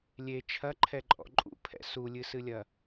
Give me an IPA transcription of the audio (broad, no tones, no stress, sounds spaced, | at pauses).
lʲ e t͡ʃʰ ɐ ǃʰ ɛ ǃʼ ɔ̰ ǃʼ ṵ pʰ ɛ̰ s u lʲ ɨ s ɨ lʲ ɐ